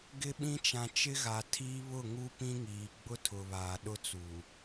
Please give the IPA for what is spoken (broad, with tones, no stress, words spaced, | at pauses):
ɡɪ˦ɓĩ˦ t͡ʃã˨t͡ʃɪ˦ɣa˨ tʰiː˦ βʊ˦˨ ŋu˦pĩ˦ŋiː˨ ɡ͡bʊ˦tʰʊ˨βaː˨ ɗʊ˦t͡su˨